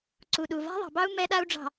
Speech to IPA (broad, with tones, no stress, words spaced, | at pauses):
ǀu˨ɗu˨ va̤˦ðˤɑ̤˨bɑ˦u̯ mɛ˦ɗa˦u̯ɖ͡ʐɑ̤˨